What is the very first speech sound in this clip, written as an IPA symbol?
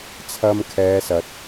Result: t͡sʰ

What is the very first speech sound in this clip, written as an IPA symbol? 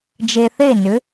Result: d͡ʒ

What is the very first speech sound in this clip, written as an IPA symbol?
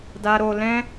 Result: d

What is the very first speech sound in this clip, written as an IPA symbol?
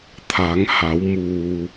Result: t̪ʰ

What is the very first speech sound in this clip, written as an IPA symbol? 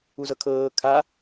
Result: u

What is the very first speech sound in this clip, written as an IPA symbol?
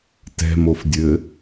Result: t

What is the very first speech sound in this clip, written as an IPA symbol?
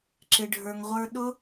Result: ǁ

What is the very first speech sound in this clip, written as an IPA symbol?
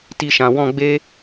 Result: t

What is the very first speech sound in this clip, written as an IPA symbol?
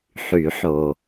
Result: ħ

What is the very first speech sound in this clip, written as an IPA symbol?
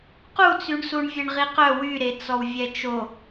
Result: q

